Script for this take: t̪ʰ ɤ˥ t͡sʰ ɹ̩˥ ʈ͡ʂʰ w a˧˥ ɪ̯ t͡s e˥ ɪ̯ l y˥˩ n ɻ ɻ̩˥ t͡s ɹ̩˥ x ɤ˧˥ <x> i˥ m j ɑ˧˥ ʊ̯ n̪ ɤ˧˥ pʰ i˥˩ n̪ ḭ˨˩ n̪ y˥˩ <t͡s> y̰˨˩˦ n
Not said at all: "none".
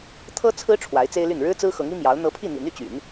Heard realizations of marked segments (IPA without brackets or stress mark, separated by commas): ŋ, t͡ɕ